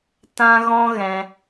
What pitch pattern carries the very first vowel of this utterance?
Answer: high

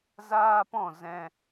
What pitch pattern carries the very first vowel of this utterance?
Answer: high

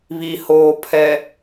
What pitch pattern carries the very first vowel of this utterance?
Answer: low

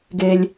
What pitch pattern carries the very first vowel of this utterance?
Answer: low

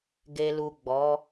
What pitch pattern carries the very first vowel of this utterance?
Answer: low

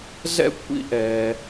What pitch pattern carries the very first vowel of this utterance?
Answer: high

